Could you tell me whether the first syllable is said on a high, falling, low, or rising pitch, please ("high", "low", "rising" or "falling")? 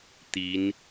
rising